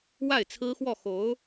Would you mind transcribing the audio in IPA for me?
w a˥˩ ɪ̯ t͡sʰ ɹ̩˥ x w ɔ˥˩ x o˧˥ ʊ̯

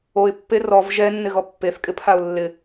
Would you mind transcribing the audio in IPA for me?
o ɪ̯ pː e r ɔ v ʒ ɛ nː ɪ ɣ ɔ pː e θ kʼ ɪ pʰ a ʊ̯ lː ɪ

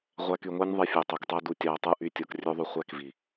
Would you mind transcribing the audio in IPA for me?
ʁʷ æ˧ k y˨ ŋʷ æ˦ nʲ ðˤ i˧ fʲ ø˨ tˤ ø˨ k tˤ æ˦ d u˧ tʲ ɑ˧ ɐ̯ tˤ ɯ˦ ʔ y˦ tʲ o˧ k rʲ ø˦ ðˤ y˧ χʷ æ˦ k v i˨

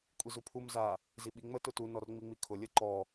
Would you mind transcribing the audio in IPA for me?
kʷʼ i z u pʰ u m z a | z i ɓ i ŋ͡m ə t ʊ t u n ɔ r ŋ͡m i ŋ͡m i kʰ ʊ lʲ ə ǃ ɔ

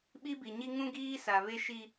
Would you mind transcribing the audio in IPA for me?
ɓ i˦ b i˨ ɲ i˦ ŋ ũ˦ ɡ iː˦ s a˨ β e˦ ʃ i˦

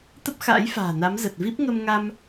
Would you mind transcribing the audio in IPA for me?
t̪ ə˦˥ p̚ x a̰ː˧˥ j f a̤ː˨˩ n a˨˦ m z ə˨˩ t̚ v i˦˥ p̚ ŋ ə˧ m ŋ a˧ m

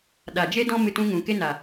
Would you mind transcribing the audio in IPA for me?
ɗ a˨ d͡ʒ e˦ d ɔ̃˦ m ɨ˧ t ũ˧ ŋ ũ˨ k e˦ n a˨

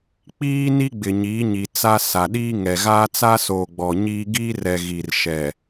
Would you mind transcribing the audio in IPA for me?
k͡p iː˦ n i˦ ɡ͡b ɪ˨ ɲ iː˨˦ ɲ i˨ t͡s a˦ s a˨ ɗ iː˦ ŋ ɛ˨ ɣ aː˦ t͡s a˦ s oː˨ ɡ͡b ɔ˨ ɲ iː˦ ɡ iː˦ r ɛ˨ ɣ i˨ r ʃ ɛ˨

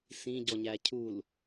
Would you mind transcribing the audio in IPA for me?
s ĩ ɟ ɔ ɲ æ cʰ u l

